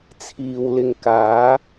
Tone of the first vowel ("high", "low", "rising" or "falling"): low